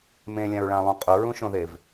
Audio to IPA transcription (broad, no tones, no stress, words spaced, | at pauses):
mẽlʲãɹɭãlˠũ qʼʊɹũʃõðev